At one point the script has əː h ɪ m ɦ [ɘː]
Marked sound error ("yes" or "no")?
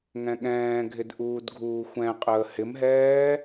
yes